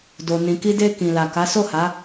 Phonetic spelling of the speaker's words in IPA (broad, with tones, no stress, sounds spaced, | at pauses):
d o˨ n ĩ˨ k i˧ d e˧ k ĩ˨ l a˨ k a˨˦ s o˦˨ h a˨˦